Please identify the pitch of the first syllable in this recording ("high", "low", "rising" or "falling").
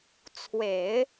low